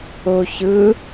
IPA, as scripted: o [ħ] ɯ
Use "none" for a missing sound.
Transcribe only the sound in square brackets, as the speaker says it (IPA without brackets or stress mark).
ç